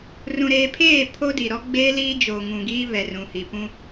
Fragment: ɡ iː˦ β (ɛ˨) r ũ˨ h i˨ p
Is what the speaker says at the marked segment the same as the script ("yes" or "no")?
yes